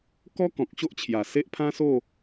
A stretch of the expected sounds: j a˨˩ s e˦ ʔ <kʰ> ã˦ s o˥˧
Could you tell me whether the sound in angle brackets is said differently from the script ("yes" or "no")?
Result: yes